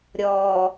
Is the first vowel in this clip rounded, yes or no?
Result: yes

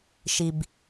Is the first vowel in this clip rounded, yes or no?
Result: no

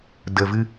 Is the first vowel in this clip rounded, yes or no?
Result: no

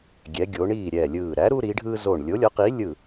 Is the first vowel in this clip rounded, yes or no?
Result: no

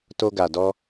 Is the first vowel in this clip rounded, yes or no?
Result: yes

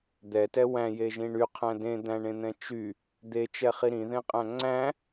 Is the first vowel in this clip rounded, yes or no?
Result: no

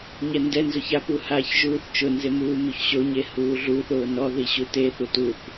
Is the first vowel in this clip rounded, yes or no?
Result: no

